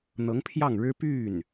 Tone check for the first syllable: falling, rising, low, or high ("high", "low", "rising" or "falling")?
rising